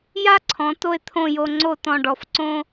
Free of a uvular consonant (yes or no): yes